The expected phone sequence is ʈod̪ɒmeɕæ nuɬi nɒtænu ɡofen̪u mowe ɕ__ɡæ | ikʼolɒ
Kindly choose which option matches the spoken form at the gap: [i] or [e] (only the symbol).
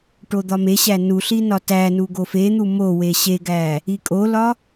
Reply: e